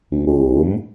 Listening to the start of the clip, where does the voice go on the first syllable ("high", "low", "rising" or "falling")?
rising